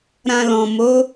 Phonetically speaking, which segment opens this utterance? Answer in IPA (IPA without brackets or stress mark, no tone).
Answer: ɾ